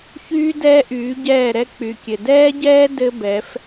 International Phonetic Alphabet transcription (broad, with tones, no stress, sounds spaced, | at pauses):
ç yː˦ d ɛː˦ ʔ yː˨˦ ɟ ɛː˦˨ ɾ ɛ˦ k͡p y˨ kʲ ɘ˨ d ɛː˦ ɟ ɛː˦ d ɘ˦ b ɛ˨˦ f